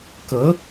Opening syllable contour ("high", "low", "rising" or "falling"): rising